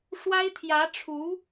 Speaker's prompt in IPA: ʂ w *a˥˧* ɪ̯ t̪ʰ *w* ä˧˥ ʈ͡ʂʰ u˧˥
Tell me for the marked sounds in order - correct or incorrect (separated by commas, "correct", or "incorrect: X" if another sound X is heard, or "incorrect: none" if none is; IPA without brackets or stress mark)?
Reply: incorrect: a˥, incorrect: j